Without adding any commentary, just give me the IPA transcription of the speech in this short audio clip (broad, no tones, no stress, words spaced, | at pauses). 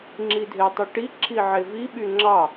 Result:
ŋ͡ǁidʱetˤɯʈi ǁʰiʕevi ɓyŋ͡ǁɑ